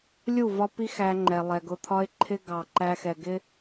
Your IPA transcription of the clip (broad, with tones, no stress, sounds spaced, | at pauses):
lʲ u˦˨ v ɒ˦ p i˦ x æ˦ ŋ͡ǃ ɛ˨ lˠ ɛ˨ ɡ ʊ˦ t̪ʰ ɒ˦ ɪ̯ ǃʰ ɪ˦ ɡ ɑ˨ ǃ æ˦ x ɛ˨ ɡ ɪ˦